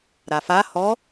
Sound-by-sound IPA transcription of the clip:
ɾafa hɔ

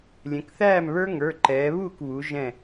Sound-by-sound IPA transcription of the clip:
lʲɛ̃˩˧kθæː˥˩mβə˞˦˥ ŋə˞˩˧˩ǃɛː˩˧ βuː˥˩kβuː˩˧ ʒɛ̃˧˩

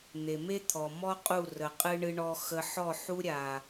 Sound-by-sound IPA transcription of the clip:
n̪e˨me˦t̪ʰɔ˨mɔ˦ qʼu˦˨rə˨qʼɨ˦ ɳɨ˧ɳɔ˧xə˧ ħɔ˦˨ħu˦ɾʲa˨

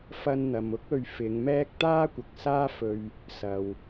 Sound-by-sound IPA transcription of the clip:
fɐ˧nn̪ɐ˨m ʊ˥k̚ɵ˧ɥfɪ˨˧ŋmɛː˥k̚ t̪aː˥kʷɐ˨k̚ saː˥fɵ˧ɥ | sɐ˨w

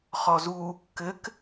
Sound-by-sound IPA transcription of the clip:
χɔzu | kɘk

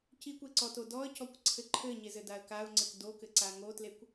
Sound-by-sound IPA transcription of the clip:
cikʷeǀɔto dɔə̯cɔkʷǀʰɘ ǃʰɘɲezɘdaə̯ kaʊ̯ŋ͡ǀɘk dokɘǀa ŋotlekʷ

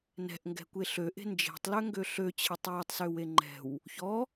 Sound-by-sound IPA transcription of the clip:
nɛ̤ʔŋɡɛ̤kʷe ɬøʔe̤ nd͡ʒe̤tˤløŋɡø ɬøt͡ɕʰɘtˤ wɤtˤsøwe ŋ͡ǃɛ̤w | çɔ

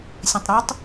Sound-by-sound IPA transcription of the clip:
sʲɐ̃tˤɾʉtˤ

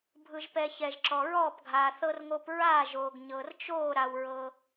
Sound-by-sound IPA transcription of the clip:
bʱɯ˧ʒpɛ˧ çɛ˧ʒǁɔ˧ɹɔː˥˧pɡʱaː˧ θɤ˧rŋo˧p ɹaː˥˧ʒoː˧ɡ ɲɤ˧rt͡ʃoː˥˧ ɾa˧wɹɤ˧

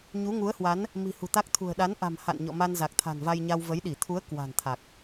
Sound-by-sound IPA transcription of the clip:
ɲu˨˦ŋu˨˦ə̯hwa˨˦n | mi̤˨˩hṳ˨˩t̪a˦˥k̚t̪ʰṳ˨˩ə̯ ɗa˨˦nʔa̤˨˩m ha̰˧˨nɲɔ̰˧˨ma˧n za˨˩k̚t̪ʰa̤˨˩nva˧jɲa˧w və˨˦jɗi˧˩ t̪ʰu˨˦ə̯ kwa̤˨˩nt̪ʰa˨˩k̚

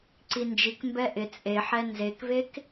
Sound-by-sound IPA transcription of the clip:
ǀind͡ʒik mbɛʔɪ t͡sʼeħɛ nzekvek

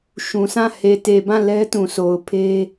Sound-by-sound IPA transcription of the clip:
ʃũ˨sʰã˦˨ he˨te˨bã˦˨ lɛ˦tũ˨so˨ʊ̯ pʰe˦

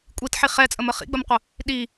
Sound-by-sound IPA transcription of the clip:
kʷʼitħi χɛt͡sʼəmə χḭɡ͡bəmqʷə | ɗi

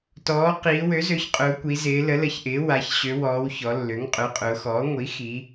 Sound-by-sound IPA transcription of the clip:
tɔː˩˧ qiː˩˧wø˩˥zø˩˥çqʼʊː˩˧ kʷi˩˧zɪː˩˧ lə˩˥lə˩˥çʔɪː˩˥ wa˩˧ç ɕø˩˧wɔː˩˧w çɔ˩˧lːø˩˥ŋ qʼø˩˥qʼʊː˩˧xɔː˩˥ ŋʷi˩˥ xi˩˧

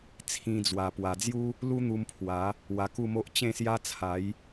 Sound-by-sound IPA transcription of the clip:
t͡sʰĩ˧d͡zwa˨˩ pwa˨˩d͡zju˦ | lu˦n̪u˧mpʰwa˨˦ | wa˧ku˥˧mo˦ʔ t͡ɕẽ˥˧sja˦ t͡sʰa˨˦j

